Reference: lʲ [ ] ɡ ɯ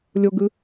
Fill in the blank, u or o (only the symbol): o